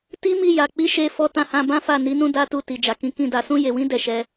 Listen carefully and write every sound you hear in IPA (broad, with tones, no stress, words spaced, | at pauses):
ti˦mi˦˨ja˨ k͡pi˨˦ ʃe˧fɔ˧ tã˧hã˧bã˦fa˦˨ ni˨˦nũ˦ da˦tu˦˨ ti˨ d͡ʒa˨kĩ˨˦ kĩ˦˨da˧ sũ˦je˧wĩ˦ dɛ˦˨ʃɛ˧